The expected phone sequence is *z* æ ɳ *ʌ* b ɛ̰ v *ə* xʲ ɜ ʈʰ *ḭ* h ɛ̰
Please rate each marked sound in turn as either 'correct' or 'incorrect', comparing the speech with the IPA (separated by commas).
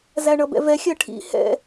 correct, correct, incorrect, correct